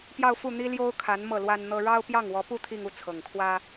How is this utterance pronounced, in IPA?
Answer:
p j ɑ˥˧ ʊ̯ f u˥˩ n̪ i˥ l j o˥ ʊ̯ kʰ a˧˥ n m ɤ˥˩ l w a˥ n n̪ ɤ˥ ɻ ɑ˥ ʊ̯ p j ɑ˥˩ ŋ w ɔ˧˥ p u˥˧ t̪ʰ i˥˧ ŋ u˥˩ t͡sʰ ɤ˨˩ ŋ kʰ w ä˥

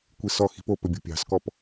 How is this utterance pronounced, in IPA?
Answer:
kʷ i s ɔ x i̤ p o p ɵ bʲ o̤ pʲ ɑ̤ s k ɔ p

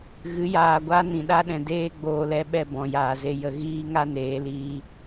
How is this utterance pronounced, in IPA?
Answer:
ɣ ɨ˨˦ j aː˨ ɡʷ a˦ n ĩ˨ ɗ a˦ ɗ ɛ̃˨ d eː˦ ɡ͡b oː˧ l ɛ˦ ɓ ɛ˦˨ b ɔ̃˨ j aː˨ z e˧ j ə˧ ɣ iː˦ ŋ a˦ n eː˨˦ l iː˧

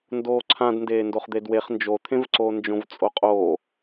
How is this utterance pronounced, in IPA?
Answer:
n d oː ǀʰ ã d n d eː n d o χ d̪ e d w e χ n d͡ʒ o t̪ʰ ẽ v ǀ oː n d͡ʒ õ v t͡sʼ o qʼ oː

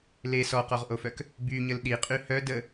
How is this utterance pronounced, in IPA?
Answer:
l e s ɔ q ɔ ʁ ʔ o f œ k | b y ɲ ə l ɗ i qʼ y h œ d ə

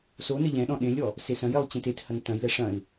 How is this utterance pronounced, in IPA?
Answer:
s o n ɘ ʎ ɛ̃ ɗ ɔ̃ ɗ ẽ lʲ ɔ | s e s ɐ̃ j e lˠ t͡ɕ ɛ̃ t e t h ɐ n t ɐ̃ j l ɛ ʂ ɐ̃ ɪ̯

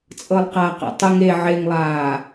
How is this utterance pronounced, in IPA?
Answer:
t͡sʼ ɤ lˠ q a q a̰ tˤ ɯ ŋ e ʕ e ŋ lˠ aː

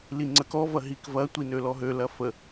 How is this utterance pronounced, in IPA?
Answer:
l i ŋ͡ǀ ə k ɔ v ɐ ɦ i k v ɐ tʷ i n ø l ɔ ɦ ø l ɐ f ə

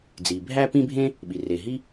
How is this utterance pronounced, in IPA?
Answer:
d͡z i˩ bʱ æ˥ p ĩ˥ bʱ ẽ˥ | ɓ i˩ r e˩ ɦ i˥

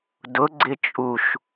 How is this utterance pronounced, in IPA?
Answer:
d ʊ ɡ͡ǀ ɪ t͡ʃʼ u ʃ

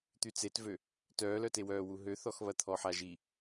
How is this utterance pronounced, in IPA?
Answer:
t̪ y t͡s e t v ø | t œː l œ t e w œː w u ɦ ø θ ɔ x β ɐ t̪ʰ ɔ ħ a ʒ i

